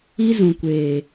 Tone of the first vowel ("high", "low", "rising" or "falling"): high